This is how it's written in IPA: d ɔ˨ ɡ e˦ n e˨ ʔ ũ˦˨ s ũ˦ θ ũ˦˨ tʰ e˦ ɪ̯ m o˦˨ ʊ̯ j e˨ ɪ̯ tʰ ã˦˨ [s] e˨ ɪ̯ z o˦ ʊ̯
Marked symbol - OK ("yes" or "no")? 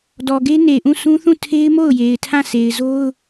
yes